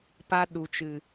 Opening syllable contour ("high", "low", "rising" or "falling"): high